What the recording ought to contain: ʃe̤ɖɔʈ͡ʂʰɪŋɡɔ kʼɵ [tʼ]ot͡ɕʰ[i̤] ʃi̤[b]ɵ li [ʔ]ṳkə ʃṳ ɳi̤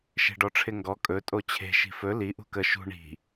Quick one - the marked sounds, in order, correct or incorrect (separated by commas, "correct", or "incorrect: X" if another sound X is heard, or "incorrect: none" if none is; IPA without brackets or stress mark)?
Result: correct, incorrect: e̤, incorrect: f, correct